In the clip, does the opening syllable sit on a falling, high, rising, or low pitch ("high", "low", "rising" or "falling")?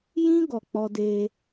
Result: high